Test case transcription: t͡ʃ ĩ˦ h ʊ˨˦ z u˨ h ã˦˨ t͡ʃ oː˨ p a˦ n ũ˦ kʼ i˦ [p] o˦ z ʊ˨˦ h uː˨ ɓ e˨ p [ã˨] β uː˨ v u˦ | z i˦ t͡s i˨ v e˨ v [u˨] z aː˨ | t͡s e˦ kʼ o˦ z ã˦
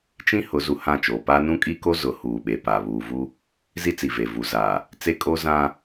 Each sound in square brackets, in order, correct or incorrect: incorrect, incorrect, correct

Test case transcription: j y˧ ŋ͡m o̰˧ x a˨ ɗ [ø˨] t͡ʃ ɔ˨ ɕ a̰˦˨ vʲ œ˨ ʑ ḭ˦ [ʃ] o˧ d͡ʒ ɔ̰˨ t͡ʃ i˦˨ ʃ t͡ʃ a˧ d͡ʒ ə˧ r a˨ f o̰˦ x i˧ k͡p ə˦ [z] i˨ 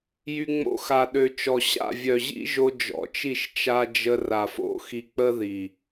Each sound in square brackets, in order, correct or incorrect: correct, incorrect, incorrect

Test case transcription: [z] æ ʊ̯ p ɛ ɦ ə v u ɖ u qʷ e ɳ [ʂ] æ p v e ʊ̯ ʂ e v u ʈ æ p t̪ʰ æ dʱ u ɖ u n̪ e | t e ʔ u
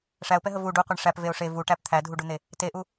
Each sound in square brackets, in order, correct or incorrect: incorrect, correct

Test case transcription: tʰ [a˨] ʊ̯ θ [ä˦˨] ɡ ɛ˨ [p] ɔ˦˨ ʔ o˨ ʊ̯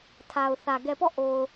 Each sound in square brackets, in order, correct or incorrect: correct, incorrect, correct

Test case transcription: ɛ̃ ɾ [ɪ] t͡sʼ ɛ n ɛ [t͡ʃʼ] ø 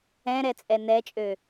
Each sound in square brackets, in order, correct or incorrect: incorrect, correct

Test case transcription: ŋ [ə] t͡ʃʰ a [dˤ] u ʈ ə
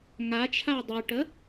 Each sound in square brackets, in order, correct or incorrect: incorrect, correct

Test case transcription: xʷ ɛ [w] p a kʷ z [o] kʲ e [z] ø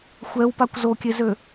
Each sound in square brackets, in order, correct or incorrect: correct, correct, correct

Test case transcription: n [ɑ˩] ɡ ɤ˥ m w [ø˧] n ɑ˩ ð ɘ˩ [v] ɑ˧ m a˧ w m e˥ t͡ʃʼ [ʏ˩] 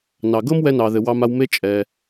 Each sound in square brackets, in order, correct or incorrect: correct, incorrect, incorrect, incorrect

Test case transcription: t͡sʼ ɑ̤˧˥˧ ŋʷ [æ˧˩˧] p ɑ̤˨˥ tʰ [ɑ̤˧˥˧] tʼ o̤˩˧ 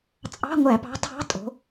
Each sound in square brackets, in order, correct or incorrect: correct, correct

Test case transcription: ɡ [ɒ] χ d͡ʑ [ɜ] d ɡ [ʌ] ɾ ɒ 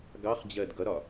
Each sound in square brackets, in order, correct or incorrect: incorrect, correct, correct

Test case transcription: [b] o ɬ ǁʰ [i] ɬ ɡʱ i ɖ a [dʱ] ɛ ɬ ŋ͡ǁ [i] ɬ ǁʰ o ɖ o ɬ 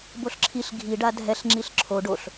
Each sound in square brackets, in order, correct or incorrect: correct, correct, correct, correct

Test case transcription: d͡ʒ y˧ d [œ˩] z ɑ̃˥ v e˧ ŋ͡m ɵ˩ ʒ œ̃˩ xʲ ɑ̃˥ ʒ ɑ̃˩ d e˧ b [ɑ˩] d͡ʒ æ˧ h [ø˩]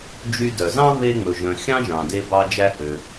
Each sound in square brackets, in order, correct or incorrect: correct, incorrect, correct

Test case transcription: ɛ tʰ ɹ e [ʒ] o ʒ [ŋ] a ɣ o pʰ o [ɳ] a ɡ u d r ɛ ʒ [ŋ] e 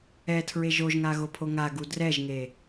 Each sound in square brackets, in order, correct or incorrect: correct, correct, incorrect, correct

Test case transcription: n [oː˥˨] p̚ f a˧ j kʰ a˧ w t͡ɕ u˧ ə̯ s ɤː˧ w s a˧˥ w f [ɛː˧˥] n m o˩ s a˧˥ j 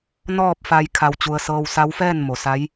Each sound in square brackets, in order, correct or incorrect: incorrect, incorrect

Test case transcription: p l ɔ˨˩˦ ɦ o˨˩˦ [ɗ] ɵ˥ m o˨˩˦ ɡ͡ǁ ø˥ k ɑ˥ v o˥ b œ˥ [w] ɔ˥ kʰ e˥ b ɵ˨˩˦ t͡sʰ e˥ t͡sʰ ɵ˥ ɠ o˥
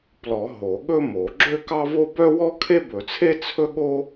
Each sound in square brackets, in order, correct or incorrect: incorrect, correct

